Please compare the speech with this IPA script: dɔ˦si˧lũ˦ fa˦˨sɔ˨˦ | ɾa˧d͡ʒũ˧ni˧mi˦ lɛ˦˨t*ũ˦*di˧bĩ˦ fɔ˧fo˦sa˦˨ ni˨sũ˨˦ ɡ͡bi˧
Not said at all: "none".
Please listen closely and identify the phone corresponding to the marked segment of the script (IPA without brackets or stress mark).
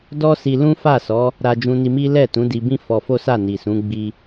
ũ˨˦